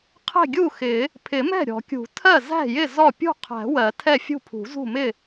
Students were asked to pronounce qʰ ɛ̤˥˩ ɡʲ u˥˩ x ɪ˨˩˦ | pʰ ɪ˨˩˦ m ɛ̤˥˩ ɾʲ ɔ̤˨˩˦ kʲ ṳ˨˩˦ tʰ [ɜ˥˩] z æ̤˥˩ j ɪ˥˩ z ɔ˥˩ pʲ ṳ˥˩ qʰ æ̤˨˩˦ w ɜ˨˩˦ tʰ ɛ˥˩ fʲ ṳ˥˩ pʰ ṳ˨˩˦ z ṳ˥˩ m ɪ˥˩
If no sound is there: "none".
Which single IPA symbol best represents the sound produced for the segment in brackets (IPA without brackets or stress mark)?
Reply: ɜ˥˩